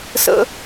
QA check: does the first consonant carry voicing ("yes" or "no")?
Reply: no